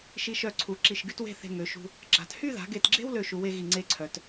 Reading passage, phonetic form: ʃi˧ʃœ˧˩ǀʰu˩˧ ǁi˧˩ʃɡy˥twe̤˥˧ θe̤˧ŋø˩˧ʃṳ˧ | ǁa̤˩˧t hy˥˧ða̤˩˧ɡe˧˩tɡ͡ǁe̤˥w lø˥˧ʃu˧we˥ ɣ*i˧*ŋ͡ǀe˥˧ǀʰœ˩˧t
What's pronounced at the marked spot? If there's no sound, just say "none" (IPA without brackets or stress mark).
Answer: i˧˩